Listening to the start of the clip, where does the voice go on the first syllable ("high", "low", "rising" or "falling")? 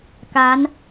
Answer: rising